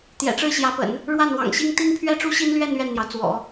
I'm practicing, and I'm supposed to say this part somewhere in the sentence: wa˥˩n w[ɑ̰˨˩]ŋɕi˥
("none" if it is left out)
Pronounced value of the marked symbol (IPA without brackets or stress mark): ɑ̰˨˩